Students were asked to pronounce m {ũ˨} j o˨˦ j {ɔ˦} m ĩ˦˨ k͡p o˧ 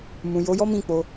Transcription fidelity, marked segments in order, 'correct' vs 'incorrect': correct, correct

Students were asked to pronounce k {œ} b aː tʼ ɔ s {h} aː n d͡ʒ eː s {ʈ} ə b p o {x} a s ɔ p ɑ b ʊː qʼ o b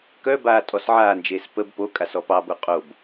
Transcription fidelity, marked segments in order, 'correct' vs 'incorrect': correct, incorrect, incorrect, incorrect

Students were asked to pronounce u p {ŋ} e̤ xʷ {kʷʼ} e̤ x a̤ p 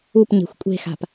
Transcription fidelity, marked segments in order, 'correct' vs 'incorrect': incorrect, correct

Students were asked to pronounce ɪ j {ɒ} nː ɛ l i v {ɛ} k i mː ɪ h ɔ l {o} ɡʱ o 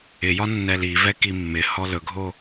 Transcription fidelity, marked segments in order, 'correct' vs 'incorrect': correct, correct, incorrect

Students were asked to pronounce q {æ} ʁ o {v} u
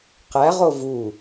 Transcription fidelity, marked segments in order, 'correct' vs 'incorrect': correct, correct

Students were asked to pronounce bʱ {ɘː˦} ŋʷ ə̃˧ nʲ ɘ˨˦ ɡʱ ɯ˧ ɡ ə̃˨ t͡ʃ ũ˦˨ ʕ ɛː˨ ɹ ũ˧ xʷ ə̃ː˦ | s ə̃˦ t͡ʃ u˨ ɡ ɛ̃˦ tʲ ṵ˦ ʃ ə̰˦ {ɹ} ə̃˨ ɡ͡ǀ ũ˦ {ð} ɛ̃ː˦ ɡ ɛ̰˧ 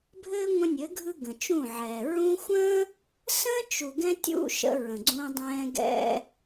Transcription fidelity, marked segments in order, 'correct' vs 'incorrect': correct, correct, incorrect

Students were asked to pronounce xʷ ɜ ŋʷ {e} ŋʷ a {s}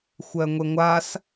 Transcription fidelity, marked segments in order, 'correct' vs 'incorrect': correct, correct

